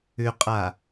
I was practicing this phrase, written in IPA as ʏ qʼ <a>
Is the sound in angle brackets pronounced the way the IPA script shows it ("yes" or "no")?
yes